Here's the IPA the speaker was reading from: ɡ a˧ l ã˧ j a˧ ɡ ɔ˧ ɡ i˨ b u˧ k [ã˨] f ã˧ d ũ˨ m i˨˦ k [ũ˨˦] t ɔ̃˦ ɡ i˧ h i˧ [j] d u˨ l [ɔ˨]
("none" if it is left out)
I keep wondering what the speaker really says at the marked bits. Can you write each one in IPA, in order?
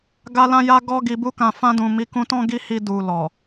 ã˨, ũ˧, none, ɔ˨

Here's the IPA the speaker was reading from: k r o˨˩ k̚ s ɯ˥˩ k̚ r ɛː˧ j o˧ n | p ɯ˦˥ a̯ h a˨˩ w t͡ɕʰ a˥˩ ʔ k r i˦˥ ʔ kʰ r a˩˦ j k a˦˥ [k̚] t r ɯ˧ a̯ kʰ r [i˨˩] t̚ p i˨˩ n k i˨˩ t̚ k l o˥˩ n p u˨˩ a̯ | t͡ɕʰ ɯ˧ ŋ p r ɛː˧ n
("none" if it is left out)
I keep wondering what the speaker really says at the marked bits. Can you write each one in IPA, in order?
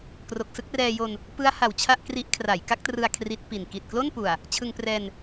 k̚, i˦˥

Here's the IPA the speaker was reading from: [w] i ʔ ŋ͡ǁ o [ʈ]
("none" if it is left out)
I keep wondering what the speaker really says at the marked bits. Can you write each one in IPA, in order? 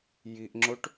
j, ʈ

